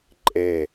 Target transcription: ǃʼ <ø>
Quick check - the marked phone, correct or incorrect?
incorrect